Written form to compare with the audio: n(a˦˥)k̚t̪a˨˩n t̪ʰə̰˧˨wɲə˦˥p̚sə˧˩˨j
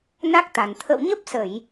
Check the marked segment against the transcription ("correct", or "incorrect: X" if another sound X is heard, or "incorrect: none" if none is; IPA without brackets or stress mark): correct